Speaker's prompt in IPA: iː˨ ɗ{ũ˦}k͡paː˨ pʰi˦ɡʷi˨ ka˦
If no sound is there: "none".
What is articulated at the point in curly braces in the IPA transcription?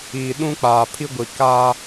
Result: ũ˦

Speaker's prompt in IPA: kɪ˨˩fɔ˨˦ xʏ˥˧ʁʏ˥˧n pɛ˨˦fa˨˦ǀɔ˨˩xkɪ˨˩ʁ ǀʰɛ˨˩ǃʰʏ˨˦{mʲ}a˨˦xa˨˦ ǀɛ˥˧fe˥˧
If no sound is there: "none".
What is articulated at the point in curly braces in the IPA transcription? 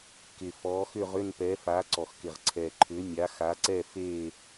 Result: mʲ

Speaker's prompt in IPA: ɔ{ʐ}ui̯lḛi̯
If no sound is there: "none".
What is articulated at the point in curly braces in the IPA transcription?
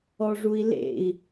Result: ʐ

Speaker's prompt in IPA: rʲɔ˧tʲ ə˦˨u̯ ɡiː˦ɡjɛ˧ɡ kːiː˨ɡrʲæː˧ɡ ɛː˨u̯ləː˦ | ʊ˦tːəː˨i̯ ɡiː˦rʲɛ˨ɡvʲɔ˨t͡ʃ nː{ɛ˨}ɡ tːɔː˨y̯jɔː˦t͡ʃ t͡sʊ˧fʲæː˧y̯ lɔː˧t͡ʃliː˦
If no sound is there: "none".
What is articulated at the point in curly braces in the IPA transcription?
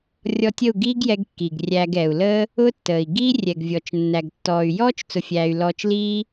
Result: æ˨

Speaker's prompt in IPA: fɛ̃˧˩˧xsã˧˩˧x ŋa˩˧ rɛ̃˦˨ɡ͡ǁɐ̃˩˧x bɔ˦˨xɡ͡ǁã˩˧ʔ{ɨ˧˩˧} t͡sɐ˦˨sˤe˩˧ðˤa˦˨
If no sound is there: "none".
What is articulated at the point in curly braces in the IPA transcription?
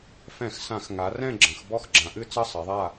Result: ɨ˦˨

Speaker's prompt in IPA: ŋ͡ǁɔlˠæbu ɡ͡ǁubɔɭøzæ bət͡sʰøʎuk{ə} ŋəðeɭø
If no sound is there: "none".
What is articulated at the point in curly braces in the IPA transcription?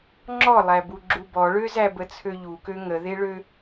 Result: ø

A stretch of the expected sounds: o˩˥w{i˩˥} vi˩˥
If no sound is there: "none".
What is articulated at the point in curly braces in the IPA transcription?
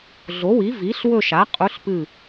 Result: i˩˥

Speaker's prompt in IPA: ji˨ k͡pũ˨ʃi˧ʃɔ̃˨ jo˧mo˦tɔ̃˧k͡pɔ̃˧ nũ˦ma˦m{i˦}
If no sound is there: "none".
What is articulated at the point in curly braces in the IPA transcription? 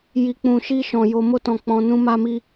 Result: i˦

